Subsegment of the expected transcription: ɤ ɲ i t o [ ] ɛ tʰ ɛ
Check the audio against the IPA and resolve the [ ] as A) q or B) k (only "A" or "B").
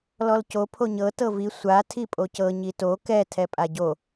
B